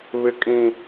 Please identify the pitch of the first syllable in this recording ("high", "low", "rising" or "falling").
high